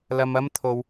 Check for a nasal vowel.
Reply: absent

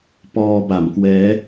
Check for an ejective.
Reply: absent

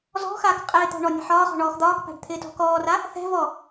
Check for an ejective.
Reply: present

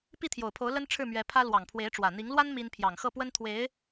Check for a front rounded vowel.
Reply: absent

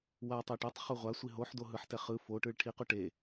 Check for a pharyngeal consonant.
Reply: present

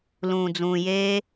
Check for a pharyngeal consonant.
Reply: absent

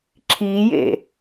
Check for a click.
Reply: present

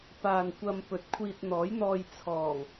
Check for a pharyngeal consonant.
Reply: absent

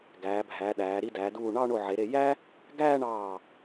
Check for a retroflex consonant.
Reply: present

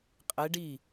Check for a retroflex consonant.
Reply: present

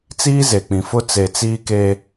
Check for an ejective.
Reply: absent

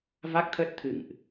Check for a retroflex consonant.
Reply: absent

